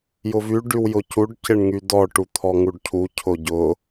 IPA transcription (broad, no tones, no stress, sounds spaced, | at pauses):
j ʊ v y ɖ y w j ʊ c u ɖ c ɪ ɳ ŋ y d ɔ ʈ u t̪ʰ ɔ ŋ u ɖ cʰ u cʰ ʊ ɟ ʊ